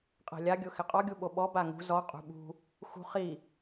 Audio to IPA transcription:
qʼɛ̤lʲa ɡʲʊxɪqʼɔ ɡʲuɓoɓɔ baŋṳ zɔ qʼṳɓṳ | xṳχi

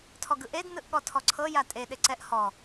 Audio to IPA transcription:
tʰɔɡɯʔed nɯʔɠɔtʰɔǀʰɤ jatʼe ɗeǀɛʔ hɔ

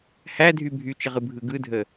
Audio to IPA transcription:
hædʱy bʱyt͡ʃəʁɯbʱɯ ɡɯdʱə

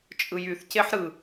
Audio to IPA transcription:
t͡ʃʼɯjyθceħ ɾɯ

